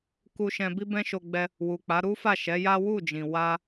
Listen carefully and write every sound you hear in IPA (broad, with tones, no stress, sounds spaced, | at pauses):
k u˧ ʃ ɛ̃˧ b i˦ b ɛ̃˦ ʃ o˧ ɡ͡b ɛ˧ | w u˨ k͡p a˨˦ ɾ u˦ f a˦˨ ʃ ɛ˨˦ j a˦ w u˦˨ d͡ʒ ĩ˨ w a˧